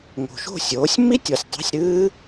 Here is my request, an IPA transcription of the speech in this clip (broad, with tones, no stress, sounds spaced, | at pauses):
ŋ o̤˨˩ ʃ o̤˥˨ sʲ oː˩˥ sʲ m i˦˥ tʲ ɔ˨˩ sʲ dˤ æ̤˧˥˧ sʲ ɾ ɨː˦˥